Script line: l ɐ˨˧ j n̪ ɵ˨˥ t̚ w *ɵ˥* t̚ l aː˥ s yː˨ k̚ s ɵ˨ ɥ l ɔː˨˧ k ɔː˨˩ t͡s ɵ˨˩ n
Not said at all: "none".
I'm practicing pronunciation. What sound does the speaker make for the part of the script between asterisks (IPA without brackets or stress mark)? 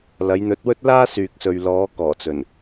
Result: ɵ˥